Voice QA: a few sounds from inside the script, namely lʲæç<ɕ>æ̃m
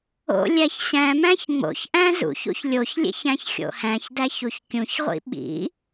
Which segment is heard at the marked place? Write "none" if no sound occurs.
ɕ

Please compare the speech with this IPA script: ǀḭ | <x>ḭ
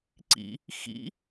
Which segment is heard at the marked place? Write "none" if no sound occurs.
x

